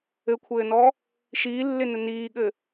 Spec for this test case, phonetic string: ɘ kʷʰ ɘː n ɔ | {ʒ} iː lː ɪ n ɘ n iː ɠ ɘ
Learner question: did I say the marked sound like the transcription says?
no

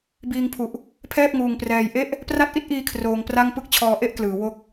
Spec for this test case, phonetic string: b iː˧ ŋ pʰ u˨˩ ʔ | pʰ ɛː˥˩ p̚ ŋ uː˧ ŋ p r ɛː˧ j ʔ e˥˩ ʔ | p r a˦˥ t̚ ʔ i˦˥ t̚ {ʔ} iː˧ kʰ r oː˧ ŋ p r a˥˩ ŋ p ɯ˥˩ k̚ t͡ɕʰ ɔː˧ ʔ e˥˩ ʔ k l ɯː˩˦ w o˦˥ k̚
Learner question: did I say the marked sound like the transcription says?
yes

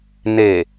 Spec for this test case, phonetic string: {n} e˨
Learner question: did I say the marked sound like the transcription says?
yes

